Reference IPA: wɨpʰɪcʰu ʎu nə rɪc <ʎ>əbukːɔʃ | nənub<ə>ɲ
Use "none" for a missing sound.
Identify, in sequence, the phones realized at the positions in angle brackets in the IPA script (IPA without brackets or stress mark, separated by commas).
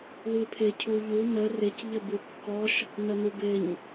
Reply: ʎ, ɪ